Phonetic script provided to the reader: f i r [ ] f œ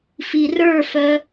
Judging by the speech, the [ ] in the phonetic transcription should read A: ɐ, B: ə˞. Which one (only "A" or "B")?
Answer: B